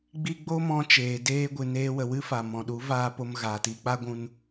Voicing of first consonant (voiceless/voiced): voiced